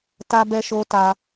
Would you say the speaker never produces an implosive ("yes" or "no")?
yes